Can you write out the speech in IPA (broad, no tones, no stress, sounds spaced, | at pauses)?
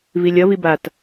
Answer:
v i lʲ ʌ v i b a t